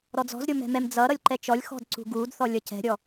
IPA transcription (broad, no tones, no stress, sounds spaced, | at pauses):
ɾ ɔ d͡z ɔ̤ z ɾʲ o m ɛ̤ m ɛ m d͡z ʌ ɾ ʌ lʲ ǃ ɛ t͡ʃ ɔ lʲ x ɔ̤ d ǀ ṳ ɡ u d θ ɔ lʲ ʌ c ɛ̤ ɾʲ ɔ